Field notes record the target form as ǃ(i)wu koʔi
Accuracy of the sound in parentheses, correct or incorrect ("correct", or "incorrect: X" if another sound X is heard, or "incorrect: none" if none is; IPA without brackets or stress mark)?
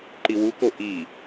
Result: correct